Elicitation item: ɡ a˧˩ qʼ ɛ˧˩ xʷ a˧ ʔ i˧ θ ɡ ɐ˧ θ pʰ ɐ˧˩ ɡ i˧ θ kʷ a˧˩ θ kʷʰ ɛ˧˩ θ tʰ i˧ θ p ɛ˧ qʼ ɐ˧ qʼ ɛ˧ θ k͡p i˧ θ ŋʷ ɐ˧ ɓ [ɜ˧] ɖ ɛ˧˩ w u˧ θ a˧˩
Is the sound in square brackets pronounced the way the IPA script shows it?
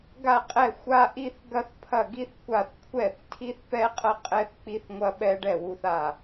no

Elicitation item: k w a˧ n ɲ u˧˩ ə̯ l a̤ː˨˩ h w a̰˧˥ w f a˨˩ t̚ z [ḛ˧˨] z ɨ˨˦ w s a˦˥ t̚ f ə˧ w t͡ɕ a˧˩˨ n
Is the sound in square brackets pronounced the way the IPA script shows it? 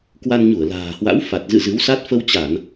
no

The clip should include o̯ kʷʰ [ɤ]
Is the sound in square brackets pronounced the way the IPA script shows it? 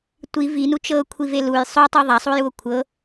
yes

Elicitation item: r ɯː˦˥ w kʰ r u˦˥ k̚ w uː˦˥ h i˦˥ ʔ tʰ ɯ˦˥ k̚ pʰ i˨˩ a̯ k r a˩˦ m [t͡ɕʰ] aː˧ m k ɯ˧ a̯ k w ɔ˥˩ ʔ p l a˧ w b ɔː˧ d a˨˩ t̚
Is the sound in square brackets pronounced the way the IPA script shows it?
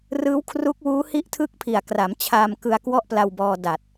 yes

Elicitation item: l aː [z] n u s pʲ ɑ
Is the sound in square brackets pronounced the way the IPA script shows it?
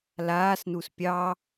no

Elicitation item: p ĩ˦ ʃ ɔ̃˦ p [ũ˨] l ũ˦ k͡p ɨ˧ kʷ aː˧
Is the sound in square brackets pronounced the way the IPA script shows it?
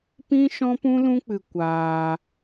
no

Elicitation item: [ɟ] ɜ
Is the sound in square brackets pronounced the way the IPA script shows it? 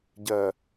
yes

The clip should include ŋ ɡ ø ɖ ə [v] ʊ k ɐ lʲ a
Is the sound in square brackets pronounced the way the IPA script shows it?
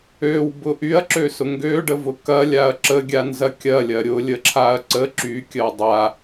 yes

